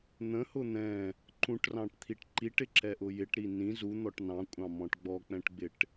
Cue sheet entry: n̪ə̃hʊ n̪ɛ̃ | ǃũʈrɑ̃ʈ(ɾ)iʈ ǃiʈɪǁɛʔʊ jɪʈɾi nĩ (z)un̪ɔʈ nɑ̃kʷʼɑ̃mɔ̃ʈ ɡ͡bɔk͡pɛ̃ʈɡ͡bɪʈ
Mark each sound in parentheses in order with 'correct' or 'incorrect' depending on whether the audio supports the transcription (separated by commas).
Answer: incorrect, correct